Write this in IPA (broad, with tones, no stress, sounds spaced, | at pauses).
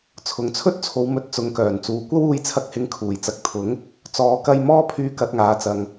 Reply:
t͡sʰ ʊ˨ ŋ t͡sʰ ɵ˥ t̚ t͡sʰ o˨˧ w m ɵ˨˥ t̚ t͡s ʊ˨ ŋ k œː˨˩ n t͡s uː˨ kʷ ɐ˥ w uː˧ j t͡sʰ ɐ˧ k̚ h ɪ˨˧ ŋ kʰ uː˨˩ j t͡s ɐ˨ k̚ t̪ʰ ʊ˨˥ ŋ | t͡s ɔː˨˧ k ɐ˧ j m ɔː˥ pʰ yː˧ k ɐ˧ t̚ ŋ aː˨ t͡s ɐ˨ ŋ